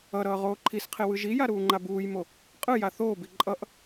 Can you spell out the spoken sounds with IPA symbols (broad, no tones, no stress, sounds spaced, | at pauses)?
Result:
ʌ ɾ ʌː ʁ oː ǃʰ i s qʰ e w ɯ ʒ i j a ɾ uː ŋ͡ǃ a b uː j m o | qʼ ɯ j a θ oː b i ǃʼ ʌ ʔ